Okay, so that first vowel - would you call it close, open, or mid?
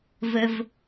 mid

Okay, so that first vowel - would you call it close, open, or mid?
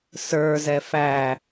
mid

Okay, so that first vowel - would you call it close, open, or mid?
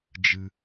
close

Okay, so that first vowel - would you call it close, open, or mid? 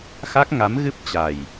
open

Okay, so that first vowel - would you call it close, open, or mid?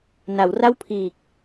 open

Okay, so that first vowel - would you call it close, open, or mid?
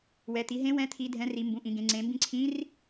mid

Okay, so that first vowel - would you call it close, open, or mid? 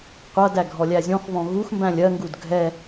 mid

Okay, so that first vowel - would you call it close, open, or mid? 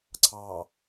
open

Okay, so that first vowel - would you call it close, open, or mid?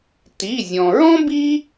close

